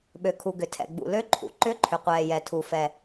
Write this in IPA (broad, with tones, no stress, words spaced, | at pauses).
ɓø˩kʰu˩ɡʏ˩ tʰɛ̰˩ɡ͡bṵ˩ lø˨˦ǃʰṵ˩ ǃʏ˨˦ ǃʰʏ˩qʷɛː˩jɛ˩ tʰu˩fɛ˩